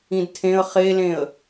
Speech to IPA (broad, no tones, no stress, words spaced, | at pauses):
ĩdtʰẽə̯ χelẽə̯